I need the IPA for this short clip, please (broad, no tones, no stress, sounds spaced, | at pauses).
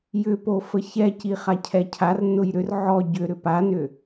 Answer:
j ʏ p o f ə ç ɛ c i χ a cʰ ɛ cʰ a r n ʊ j ɾ ʏ r ʕ ɔ ɟ ʏ ɾ ʏ p a n ʏ